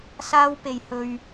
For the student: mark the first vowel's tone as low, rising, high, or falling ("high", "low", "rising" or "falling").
high